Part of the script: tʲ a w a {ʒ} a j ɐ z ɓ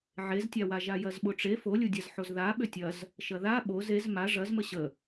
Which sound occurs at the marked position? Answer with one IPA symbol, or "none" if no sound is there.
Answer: ʒ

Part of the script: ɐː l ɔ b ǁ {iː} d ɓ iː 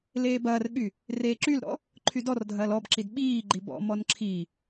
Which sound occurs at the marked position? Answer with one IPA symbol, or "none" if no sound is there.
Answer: i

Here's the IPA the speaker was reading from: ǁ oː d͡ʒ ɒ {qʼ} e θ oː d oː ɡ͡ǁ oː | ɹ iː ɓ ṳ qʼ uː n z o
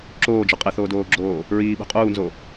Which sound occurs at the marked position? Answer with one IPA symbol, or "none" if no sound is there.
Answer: qʼ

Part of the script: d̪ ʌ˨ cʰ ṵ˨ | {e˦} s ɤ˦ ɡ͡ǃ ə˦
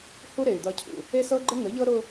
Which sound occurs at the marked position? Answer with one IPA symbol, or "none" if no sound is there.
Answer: e˦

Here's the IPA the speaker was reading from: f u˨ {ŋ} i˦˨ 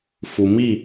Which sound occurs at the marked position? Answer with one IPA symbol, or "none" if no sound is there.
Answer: m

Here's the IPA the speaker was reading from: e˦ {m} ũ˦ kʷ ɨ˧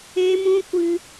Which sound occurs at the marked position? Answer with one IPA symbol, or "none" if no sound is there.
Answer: m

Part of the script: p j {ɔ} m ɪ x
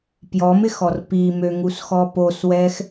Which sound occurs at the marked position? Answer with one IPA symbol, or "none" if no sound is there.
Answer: ɔ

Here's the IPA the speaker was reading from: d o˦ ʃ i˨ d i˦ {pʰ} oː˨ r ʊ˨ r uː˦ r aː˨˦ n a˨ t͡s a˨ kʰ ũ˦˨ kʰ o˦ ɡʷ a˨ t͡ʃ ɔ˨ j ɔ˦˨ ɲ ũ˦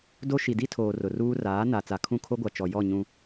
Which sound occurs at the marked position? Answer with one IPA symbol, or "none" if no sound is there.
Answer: tʰ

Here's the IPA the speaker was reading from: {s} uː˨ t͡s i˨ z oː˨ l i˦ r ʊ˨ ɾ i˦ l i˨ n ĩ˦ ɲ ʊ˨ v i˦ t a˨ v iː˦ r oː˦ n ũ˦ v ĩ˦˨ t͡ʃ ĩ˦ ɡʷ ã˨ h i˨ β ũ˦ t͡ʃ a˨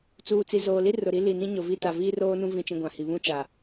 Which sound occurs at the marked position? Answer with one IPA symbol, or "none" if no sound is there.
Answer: t͡s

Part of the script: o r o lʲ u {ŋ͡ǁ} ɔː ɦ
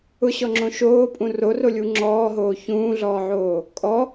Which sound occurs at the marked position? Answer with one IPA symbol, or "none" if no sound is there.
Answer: ŋ͡ǁ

